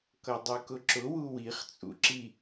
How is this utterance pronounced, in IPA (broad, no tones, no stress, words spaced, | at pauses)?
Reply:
kʌdˤukʊǁʊ wuwiχ t͡sʼṵǁi